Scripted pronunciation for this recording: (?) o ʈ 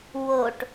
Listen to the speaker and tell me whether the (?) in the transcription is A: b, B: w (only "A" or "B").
B